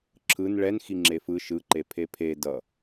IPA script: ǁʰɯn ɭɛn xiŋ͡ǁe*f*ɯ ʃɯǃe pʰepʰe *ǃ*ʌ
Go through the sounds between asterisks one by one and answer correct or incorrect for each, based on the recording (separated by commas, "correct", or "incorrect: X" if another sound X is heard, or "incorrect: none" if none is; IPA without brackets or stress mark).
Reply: correct, incorrect: d